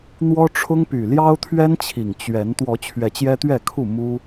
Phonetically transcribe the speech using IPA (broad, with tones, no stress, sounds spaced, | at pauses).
n̪ w ɔ˦ ʈ͡ʂʰ ʊ˦ ŋ p y˨˩ l j ɑ˦ ʊ̯ t̪ʰ ɥ ɛ˦ n t͡ɕʰ i˨˩ ŋ t͡ɕ ɥ ɛ˨˦ n t̪ w ɔ˨˦ t͡ɕʰ ɥ ɛ˨˦ t͡ɕ j ɛ˦ t̪ ɥ ɛ˥˨ kʰ u˥˨ m u˦